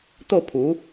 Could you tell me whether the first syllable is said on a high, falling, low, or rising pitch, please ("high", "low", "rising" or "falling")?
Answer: falling